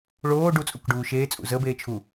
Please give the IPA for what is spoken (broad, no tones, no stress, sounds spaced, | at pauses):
ɭ oː ɖ u t͡sʼ u k ɖ uː ʃ eː t͡sʼ ṵ z ə b eː t͡ʃʰ u